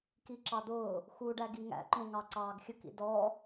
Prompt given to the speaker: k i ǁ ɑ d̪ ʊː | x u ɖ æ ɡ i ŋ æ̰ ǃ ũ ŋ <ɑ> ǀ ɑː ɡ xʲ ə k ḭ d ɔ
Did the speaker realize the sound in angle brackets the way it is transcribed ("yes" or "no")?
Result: yes